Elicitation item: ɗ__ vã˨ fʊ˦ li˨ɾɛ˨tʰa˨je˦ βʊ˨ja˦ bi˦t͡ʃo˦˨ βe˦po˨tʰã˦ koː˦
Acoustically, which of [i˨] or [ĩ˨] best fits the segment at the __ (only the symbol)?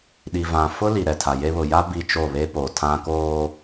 i˨